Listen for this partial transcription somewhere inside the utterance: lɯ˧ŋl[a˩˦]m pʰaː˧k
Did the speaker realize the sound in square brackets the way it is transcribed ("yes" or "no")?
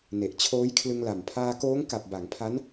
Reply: no